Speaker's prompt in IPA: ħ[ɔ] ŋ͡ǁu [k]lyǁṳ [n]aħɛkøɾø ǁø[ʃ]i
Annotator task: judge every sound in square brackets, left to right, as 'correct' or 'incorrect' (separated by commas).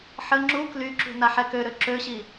incorrect, correct, correct, incorrect